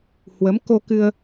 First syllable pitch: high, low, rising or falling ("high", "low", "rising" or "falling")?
rising